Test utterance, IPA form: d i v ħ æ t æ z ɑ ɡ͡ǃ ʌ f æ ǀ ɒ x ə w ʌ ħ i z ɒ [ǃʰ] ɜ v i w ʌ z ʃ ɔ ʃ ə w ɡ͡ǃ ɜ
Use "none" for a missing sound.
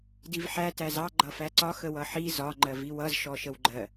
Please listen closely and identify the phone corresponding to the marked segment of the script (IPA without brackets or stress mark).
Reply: ŋ͡ǃ